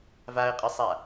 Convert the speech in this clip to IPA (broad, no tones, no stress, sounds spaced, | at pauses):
v a ə̯ qʼ ɯ sˤ a